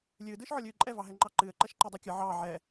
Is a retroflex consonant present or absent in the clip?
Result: absent